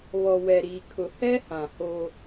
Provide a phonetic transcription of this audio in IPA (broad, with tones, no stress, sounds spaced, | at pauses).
β ɔ˨ w ɛ˨ ɾ iː˨ kʰ ʊ˨ h ɛ˦ h ã˨ h o˦